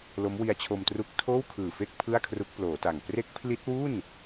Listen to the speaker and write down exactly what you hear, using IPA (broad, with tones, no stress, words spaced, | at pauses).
lo˦˥mwi˦˥a̯t͡ɕʰo˧mtru˦˥k̚ tʰoː˥˩wkʰɯː˨˩fe˥˩k̚ pʰɯ˥˩a̯kʰru˦˥k̚ploː˩˦ta˨˩ŋ pre˦˥k̚pʰli˦˥t̚wu˥˩n